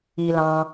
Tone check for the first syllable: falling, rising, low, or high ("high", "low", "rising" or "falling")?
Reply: low